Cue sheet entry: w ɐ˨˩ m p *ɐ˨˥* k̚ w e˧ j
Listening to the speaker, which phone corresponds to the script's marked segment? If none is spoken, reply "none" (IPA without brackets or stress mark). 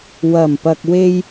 ɐ˨